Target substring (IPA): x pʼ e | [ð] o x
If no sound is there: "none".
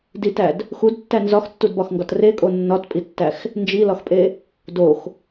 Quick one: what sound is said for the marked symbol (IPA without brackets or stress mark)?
d